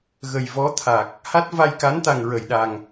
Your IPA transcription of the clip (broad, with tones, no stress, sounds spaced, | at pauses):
ɣ ə˨˩ j v ɔ˧˥ t̪ʰ a˨˩ k̚ | h a˦˥ t̚ v a˧ j k a˧˥ n t̪ a˨˩ ŋ ɹ ə˨˩˨ j ɗ a˨˩ ŋ